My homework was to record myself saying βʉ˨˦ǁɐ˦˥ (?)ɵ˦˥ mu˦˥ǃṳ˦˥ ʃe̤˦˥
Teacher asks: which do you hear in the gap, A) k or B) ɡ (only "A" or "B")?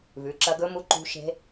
B